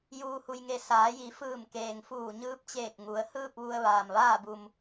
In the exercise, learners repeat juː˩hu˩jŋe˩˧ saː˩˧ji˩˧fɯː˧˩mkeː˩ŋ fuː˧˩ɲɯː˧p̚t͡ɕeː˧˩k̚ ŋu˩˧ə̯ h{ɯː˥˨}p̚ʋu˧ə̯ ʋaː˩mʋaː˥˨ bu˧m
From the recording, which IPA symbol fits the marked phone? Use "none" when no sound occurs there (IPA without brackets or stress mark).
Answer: ɯː˥˨